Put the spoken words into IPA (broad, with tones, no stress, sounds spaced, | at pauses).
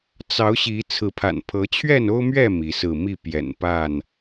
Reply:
t͡s ɑ˨˦ ʊ̯ ɕ i˨˦ t͡sʰ ɹ̩˨˦ pʰ a̰˨˩ n pʰ ɤ˨˦ t͡ɕʰ ɥ ɛ˥˨ n o˦ ʊ̯ m ɥ ɛ˥˨ m i˨˦ s ɹ̩˥˨ m i˥˨ p j ɛ̰˨˩ n p a˥˨ n